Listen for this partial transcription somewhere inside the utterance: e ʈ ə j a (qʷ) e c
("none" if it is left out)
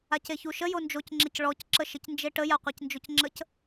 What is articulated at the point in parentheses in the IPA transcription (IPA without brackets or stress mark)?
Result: qʷ